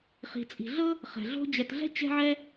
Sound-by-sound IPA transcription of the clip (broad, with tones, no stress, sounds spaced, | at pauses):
χ i̤˧ t͡sʼ i̤˧ ɮ ɤ˥ | χ ɛ̤˧ ɮ o̤˥ d͡ʑ ɛ˧ t ɮ ɛ̤˥ t͡ɕ ɛ̤˥ ʕ ɛ˥